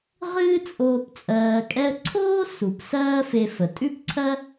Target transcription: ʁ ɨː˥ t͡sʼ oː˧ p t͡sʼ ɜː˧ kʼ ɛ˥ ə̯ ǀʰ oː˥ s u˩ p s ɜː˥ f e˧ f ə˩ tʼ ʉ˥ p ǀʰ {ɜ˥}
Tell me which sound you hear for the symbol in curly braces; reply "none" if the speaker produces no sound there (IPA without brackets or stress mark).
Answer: ɜ˥